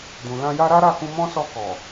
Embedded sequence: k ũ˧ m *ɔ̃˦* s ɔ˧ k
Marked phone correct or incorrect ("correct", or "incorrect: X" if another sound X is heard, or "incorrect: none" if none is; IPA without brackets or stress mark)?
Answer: correct